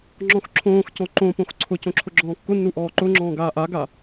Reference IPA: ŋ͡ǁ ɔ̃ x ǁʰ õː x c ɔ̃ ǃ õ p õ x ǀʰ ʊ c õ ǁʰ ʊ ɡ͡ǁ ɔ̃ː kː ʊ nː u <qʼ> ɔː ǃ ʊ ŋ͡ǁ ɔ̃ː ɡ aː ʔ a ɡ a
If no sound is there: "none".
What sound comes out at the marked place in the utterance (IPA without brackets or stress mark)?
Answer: ʔ